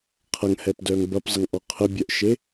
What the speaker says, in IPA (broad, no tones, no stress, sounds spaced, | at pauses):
qʰ ɐ ŋ h ɛ p d œ ŋ b ɐ p zˤ ə ŋ ʔ ɔ qʰ ə bʲ œ ʔ ʃ e